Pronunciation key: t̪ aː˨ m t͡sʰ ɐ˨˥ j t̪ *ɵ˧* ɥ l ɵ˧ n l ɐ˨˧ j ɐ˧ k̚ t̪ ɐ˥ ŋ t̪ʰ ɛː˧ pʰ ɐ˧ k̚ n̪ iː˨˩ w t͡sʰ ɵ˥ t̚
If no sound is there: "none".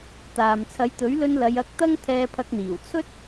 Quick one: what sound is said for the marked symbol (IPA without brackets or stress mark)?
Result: ɵ˨˥